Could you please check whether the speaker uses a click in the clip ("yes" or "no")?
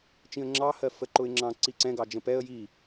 yes